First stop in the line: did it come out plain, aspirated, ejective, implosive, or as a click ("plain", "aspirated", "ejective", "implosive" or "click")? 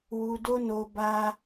plain